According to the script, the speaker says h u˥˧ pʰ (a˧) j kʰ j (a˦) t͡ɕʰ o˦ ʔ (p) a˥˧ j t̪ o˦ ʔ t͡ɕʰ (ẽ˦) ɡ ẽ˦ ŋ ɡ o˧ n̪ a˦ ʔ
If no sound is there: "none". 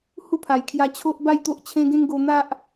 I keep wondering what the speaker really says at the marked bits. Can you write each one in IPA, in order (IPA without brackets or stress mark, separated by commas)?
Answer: a˨˩, a˧, b, ẽ˦